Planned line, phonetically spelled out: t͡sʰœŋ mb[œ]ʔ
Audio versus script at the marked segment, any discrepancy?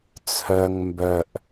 no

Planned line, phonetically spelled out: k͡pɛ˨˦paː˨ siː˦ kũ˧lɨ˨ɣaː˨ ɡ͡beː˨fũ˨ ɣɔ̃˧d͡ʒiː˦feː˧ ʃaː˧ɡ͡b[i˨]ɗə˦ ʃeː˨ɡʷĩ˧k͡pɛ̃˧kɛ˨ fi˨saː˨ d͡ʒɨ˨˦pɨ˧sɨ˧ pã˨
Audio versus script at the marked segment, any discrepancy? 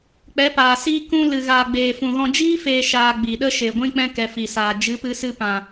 no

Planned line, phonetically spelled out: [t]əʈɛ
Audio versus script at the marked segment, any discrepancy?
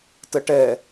no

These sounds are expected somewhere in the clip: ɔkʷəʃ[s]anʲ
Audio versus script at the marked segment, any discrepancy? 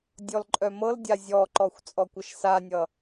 no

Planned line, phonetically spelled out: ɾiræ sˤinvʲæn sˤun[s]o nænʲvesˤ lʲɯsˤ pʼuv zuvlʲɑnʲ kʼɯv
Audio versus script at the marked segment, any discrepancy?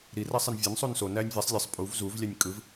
no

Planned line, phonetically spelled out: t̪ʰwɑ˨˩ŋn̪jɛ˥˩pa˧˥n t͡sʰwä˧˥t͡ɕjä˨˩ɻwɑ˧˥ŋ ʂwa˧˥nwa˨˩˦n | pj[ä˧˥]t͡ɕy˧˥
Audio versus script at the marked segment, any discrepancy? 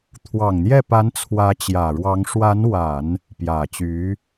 yes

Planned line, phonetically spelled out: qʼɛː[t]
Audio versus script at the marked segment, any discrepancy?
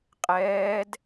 yes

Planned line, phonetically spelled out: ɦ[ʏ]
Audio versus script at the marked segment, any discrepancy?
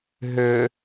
no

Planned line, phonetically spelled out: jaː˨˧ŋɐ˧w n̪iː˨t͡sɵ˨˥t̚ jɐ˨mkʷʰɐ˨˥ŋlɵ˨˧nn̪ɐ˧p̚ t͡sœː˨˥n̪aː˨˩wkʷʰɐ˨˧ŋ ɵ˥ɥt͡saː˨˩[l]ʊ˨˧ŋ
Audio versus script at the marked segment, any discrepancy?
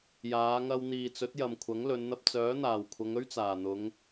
yes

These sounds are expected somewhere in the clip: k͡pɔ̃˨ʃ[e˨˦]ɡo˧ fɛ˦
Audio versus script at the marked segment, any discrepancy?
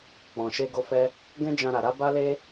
yes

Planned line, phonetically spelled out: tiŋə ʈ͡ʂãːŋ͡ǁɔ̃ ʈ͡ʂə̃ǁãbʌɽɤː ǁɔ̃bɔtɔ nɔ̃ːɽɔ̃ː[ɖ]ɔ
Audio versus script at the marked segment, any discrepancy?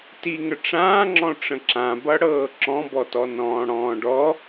no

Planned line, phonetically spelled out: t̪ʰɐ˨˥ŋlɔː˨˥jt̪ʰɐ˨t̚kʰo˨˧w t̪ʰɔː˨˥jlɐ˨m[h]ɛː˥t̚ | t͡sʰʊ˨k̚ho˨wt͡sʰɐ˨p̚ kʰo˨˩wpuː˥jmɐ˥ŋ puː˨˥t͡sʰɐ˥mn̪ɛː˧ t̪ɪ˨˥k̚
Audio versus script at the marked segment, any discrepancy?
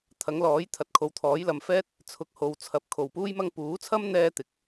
yes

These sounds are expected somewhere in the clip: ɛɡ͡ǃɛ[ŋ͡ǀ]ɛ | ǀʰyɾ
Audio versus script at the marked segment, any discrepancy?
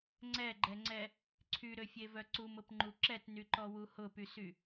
no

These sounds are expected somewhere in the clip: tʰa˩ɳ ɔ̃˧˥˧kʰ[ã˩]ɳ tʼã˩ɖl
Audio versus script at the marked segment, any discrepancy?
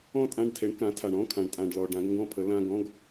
no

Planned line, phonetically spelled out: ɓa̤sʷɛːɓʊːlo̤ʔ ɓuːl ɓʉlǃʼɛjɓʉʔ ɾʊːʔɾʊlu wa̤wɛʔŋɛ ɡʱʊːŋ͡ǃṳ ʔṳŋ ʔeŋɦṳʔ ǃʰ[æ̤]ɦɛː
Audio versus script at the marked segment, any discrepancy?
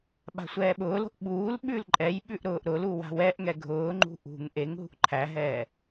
yes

